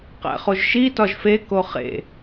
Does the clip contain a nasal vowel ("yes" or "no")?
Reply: no